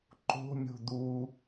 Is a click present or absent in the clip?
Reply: present